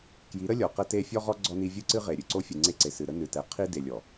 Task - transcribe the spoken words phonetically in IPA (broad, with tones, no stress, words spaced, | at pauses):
kji˨˦ɾə˦ lʲɔ˨qə˦te˦ fʲɔ˦ʁɔ˦ ɡ͡ǀɔ˦ni˦ vʲɨ˦ǀɨ˦ʁe˨ ɾʲɨ˨ǀo˦fʲɨ˨ ŋ͡ǀe˦ǀe˨sɨ˨ ɾə˦nɨ˨tɛ˨˦ qʰi˦de˨lʲɔ˨